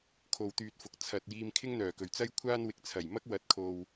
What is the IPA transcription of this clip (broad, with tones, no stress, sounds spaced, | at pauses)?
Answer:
kʰ o˨ w t̪ yː˧ t̚ f ʊ˨ k̚ t͡sʰ ɐ˨ t̚ j iː˧ m kʰ ɪ˥ ŋ n̪ œː˨˩ k ɵ˨˩ ɥ t͡s ɐ˥ j kʷʰ aː˥ n w ɪ˨˥ k̚ t͡sʰ ɐ˨˩ j m ɐ˥ k̚ w ɐ˨˥ t̚ kʰ o˨ w